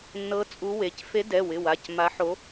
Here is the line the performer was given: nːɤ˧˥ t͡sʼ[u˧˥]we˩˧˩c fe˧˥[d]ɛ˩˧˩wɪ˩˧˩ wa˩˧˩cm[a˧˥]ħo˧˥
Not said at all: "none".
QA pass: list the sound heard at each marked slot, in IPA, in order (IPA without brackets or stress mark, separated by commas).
u˧˥, d, a˧˥